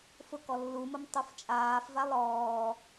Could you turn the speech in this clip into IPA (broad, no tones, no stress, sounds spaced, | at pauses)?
f ʊ k ɔ lː u m ʊ m tˤ u f t͡ʃʼ aː f v a lˠ ɔː